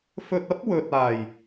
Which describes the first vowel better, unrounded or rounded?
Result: rounded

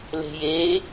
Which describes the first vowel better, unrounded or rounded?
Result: unrounded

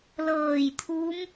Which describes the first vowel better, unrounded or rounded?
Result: unrounded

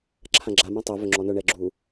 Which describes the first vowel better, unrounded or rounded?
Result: unrounded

